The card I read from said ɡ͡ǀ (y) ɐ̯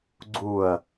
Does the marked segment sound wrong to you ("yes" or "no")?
yes